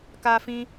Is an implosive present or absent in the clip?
absent